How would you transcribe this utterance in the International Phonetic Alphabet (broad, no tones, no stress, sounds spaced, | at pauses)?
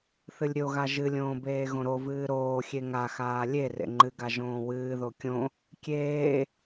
θ ɨ lʲ ɾʲ o ɣ a ʒ ɨ lʲ õː b eː ɣ õ ɾ o v ɨː ɾ oː xʲ e ŋ a x aː lʲ e r ḛ ŋ͡ǃ ɨ ɡ a ʒ õː w ɨː ð o kʲ õ | kʲ eː